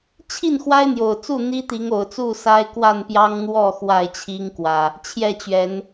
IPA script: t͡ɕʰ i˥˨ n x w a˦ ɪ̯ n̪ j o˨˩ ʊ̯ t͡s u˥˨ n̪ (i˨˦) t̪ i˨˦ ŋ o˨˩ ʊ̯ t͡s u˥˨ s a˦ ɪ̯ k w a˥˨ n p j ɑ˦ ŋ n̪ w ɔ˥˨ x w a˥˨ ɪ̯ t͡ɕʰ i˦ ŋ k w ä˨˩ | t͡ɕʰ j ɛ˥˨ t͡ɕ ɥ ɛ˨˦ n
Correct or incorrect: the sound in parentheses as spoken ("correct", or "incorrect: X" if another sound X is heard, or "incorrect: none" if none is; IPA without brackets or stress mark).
incorrect: i˦